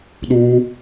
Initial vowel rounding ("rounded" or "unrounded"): rounded